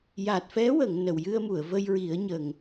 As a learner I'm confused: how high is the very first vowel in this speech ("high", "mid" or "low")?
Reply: low